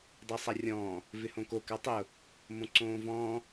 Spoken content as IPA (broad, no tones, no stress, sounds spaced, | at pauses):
dˤ a sˤ a rʲ ɔ̃ː | v ɪ h õ k o k a tˤ ɪ ʊ̯ | m õ ǀ õː v ɔ̃ː